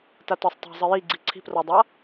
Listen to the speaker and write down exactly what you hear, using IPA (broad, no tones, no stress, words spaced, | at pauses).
tatɔsˤtˤa̤ zˤɨjiɡ͡ǀi ǀʰi̤prɔdˤa